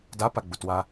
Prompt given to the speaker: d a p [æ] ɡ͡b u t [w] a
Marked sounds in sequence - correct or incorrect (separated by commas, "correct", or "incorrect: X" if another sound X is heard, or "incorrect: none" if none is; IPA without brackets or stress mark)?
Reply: incorrect: a, correct